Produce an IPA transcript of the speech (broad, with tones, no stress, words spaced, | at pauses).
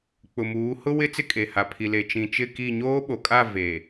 k͡pʊ˨muː˨˦ hʊ˦wɪ˦ t͡sɪ˦˨kʼe˨ha˨ pʰi˨le˨ t͡ʃĩ˨t͡ʃɪ˦˨ki˦˨ ɲoː˦ɓo˨kʼa˦˨ ve˨